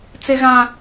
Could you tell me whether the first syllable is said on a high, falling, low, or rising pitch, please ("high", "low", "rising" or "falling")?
high